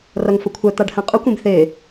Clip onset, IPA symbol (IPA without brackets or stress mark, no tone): r